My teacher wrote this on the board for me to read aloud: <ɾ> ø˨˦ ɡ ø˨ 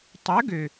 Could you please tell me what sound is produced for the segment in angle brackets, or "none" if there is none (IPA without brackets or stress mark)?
tˤ